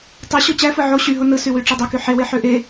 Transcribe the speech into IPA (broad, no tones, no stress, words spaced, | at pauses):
tˤɯ ɕot͡ɕæfɯ ʕo ɕyɦo nɯsywy ʈ͡ʂedˤoky ħewe ħøʔe